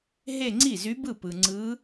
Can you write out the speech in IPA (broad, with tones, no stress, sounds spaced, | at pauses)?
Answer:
ɦ e˥˧ ŋ͡ǀ i˥˩ z y˧˥ b ɯ˥˩ p ɯ˨ ŋ͡ǀ ɯː˧˥